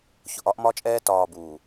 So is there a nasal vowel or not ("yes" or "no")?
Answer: no